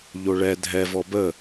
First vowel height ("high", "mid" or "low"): mid